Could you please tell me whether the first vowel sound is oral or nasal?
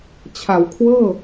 oral